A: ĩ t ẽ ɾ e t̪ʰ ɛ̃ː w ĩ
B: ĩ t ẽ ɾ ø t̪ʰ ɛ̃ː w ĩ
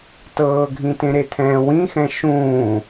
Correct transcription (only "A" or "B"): A